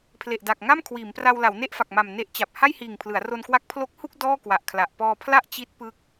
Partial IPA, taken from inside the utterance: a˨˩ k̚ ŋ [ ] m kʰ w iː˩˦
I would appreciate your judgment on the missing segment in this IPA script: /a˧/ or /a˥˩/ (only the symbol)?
a˥˩